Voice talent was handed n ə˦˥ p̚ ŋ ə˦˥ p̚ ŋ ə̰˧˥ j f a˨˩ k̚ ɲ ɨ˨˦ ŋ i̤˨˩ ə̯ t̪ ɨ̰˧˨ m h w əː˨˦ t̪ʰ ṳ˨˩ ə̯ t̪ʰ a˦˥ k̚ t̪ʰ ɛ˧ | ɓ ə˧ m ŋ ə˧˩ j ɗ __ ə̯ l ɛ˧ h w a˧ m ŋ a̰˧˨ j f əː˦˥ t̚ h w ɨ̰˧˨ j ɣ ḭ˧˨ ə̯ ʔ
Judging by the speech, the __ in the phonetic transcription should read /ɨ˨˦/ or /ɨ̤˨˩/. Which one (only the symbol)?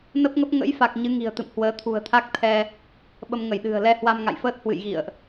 ɨ̤˨˩